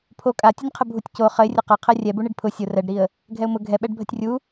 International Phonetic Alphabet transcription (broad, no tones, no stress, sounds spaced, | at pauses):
pʰ o kʼ a tʲ ʊ nʲ qʰ ə bʱ u tʲ c o χ ə ɪ̯ rʲ ɐ q ɐ qʰ ɛ rʲ ɛ b u ɳ i ɖ pʰ ʊ sʲ ʊ r ɛ ɖ ɾ i ə̯ | ɡʱ ɛ ʊ̯ m ʊ ɡʱ ɛ ɓ ɛ ɖ bʱ ə tʲ rʲ u